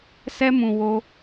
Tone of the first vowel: high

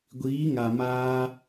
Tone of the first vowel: rising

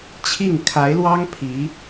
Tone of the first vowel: falling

